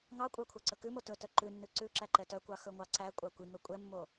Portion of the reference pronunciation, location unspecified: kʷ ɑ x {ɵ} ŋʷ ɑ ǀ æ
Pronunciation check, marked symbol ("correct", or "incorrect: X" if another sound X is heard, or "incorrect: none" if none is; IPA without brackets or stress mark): correct